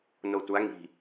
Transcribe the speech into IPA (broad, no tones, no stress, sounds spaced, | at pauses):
n o tʷ a ŋ i̤